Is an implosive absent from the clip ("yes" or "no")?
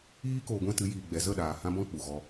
no